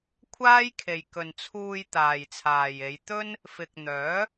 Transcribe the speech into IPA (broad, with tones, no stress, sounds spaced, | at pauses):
kʷʰ aː˥ j kʰ e˨ j k ɵ˨ n t͡sʰ uː˧ j t̪ aː˨ j t͡sʰ aː˨ j e˨˧ j t̪ ɵ˥ n | f ɪ˨ k̚ n̪ œː˨˥